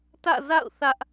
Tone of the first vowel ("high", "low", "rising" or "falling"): falling